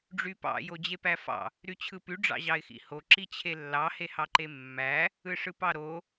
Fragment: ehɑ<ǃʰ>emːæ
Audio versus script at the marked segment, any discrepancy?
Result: yes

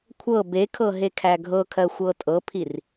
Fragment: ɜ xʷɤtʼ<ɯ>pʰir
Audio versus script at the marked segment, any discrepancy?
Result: yes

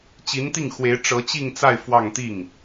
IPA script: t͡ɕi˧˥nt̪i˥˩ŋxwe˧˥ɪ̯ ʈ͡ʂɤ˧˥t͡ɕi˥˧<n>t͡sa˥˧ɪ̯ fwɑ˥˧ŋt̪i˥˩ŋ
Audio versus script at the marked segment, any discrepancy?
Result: yes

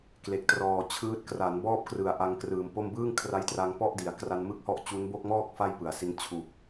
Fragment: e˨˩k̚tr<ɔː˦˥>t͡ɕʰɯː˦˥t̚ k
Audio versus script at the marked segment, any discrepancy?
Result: yes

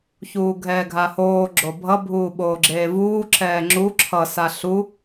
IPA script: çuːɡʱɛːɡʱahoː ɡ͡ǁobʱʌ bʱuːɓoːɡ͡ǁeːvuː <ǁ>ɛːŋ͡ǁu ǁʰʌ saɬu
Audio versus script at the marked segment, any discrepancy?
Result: no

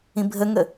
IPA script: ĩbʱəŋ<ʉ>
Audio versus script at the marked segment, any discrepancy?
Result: yes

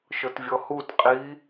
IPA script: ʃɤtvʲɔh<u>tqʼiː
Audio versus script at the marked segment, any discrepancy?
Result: no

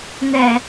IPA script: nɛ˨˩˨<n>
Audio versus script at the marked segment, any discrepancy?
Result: yes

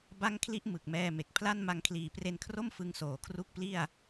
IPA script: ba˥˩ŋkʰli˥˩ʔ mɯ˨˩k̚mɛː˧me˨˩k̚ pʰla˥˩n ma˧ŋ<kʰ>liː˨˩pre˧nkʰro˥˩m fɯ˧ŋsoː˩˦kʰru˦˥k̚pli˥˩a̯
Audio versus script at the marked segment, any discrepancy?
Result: no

